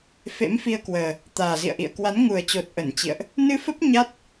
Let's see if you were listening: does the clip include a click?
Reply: no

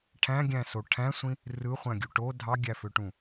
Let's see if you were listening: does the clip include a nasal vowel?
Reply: yes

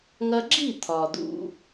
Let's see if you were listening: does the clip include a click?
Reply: yes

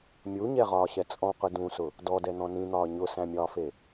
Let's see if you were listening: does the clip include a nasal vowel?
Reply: yes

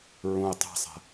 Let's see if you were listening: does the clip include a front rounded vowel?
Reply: no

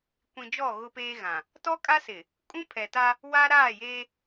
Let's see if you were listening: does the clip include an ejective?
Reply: yes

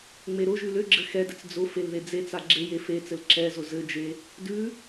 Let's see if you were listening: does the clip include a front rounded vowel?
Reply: yes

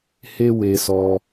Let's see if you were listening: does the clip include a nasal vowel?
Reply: no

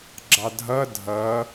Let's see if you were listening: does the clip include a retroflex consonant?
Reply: no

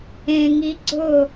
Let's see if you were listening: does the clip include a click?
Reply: yes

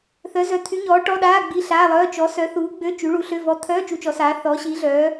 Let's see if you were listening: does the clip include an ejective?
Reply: no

